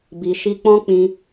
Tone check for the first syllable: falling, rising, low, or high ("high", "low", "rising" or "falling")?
low